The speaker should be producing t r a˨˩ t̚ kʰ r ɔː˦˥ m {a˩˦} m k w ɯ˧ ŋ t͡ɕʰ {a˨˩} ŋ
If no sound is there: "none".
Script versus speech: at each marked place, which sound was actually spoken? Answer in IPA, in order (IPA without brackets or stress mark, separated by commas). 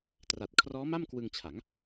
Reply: a˥˩, a˩˦